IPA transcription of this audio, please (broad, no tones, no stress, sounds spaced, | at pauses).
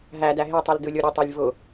ɦ æ d æ ɦ e tˤ ɯ l d ɯ lʲ o ɾʲ ʊ tˤ e lʲ v ʊ